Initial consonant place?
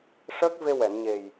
retroflex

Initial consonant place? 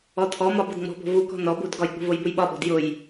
alveolar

